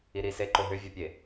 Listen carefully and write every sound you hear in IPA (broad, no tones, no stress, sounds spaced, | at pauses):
i ɾ i s e ǃ o ɦ ʏ vʲ ɐ pʲ e